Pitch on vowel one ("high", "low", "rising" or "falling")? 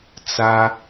high